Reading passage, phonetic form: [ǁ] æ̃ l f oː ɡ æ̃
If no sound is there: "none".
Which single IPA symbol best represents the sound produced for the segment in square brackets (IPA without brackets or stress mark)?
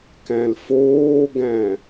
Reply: k